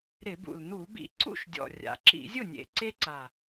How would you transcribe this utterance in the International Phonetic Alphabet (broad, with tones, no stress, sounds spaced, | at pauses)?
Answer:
ɾ ɪ˧˩˧ b ṵ˨˩ l n̪ u˧˩˧ b ḭ˧˩˧ ǀ ṵ˥˩ ʃ dʲ ɔ̰˨˩ rʲ a̰˨˩ ǁ ḭ˧˩˧ zʲ ʊ˥˩ nʲ ḛ˨˩ ǀ e˦ ǀ a˨˩